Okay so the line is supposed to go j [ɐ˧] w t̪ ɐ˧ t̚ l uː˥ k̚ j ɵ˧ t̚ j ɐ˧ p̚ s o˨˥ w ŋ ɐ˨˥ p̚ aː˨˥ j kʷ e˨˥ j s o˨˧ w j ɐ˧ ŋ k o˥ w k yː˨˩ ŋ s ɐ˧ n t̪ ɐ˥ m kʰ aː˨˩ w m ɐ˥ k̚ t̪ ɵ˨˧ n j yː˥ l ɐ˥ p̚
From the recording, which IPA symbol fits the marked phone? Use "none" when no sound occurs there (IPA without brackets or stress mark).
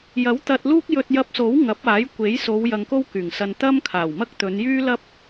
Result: ɐ˨˥